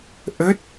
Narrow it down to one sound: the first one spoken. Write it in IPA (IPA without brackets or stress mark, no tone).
ʔ